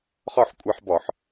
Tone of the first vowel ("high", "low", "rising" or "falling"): falling